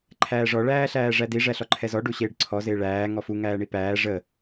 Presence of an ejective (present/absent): absent